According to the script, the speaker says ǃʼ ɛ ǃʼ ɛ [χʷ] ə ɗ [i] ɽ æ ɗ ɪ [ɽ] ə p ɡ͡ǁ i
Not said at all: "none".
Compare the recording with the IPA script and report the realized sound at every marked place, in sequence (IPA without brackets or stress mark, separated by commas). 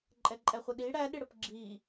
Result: χʷ, i, ɽ